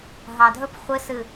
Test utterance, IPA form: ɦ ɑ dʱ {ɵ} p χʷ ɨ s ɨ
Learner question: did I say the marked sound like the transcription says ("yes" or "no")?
yes